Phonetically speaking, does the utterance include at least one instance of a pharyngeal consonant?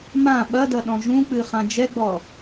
no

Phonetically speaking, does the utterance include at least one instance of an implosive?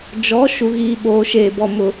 yes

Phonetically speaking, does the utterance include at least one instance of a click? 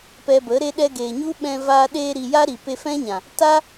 no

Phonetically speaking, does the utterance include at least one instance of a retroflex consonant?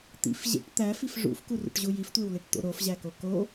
yes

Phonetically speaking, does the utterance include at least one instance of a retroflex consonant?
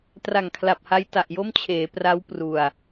no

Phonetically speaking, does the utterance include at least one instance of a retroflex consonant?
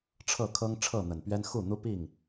yes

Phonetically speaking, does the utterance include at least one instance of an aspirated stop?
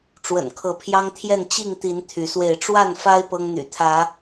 yes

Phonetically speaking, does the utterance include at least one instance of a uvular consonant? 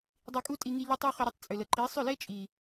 yes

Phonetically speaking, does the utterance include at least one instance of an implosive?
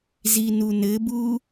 no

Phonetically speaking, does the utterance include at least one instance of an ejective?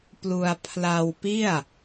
no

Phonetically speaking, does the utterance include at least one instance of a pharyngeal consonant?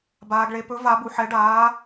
yes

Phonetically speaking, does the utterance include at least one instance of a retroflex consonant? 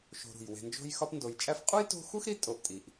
no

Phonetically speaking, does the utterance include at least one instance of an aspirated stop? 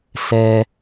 no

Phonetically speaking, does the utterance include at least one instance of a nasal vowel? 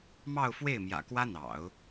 no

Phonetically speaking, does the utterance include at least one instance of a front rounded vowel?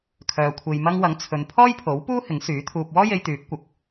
yes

